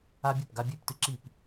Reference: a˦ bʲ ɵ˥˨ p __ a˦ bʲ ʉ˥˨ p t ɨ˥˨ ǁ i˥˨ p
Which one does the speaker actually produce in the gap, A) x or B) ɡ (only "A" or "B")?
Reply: B